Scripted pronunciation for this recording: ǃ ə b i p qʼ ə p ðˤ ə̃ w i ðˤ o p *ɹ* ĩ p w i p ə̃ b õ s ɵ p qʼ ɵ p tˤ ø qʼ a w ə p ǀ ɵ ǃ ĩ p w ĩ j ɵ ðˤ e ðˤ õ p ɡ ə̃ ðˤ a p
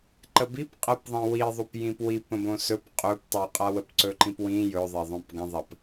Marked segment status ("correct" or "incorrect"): incorrect